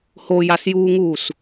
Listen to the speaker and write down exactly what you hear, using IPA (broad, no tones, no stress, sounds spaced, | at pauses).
h o j a s j uː ŋ uː s